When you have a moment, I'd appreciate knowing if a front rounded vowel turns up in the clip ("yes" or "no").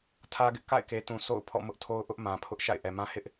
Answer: no